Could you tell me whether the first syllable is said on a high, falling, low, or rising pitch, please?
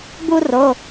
high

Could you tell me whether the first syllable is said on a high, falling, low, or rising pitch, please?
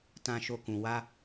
high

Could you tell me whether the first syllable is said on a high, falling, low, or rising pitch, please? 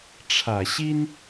low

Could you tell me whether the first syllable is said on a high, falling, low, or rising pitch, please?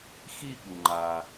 falling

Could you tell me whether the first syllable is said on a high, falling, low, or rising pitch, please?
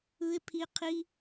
low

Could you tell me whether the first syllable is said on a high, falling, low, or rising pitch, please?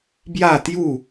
falling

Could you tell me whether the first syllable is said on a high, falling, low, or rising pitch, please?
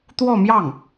falling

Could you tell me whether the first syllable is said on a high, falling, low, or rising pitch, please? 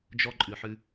high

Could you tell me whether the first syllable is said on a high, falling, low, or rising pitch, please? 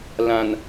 low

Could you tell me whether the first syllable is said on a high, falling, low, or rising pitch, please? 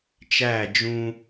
falling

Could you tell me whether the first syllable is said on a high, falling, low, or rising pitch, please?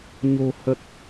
low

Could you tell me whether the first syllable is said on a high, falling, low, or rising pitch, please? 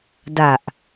low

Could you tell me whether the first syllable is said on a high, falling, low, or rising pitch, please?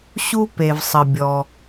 high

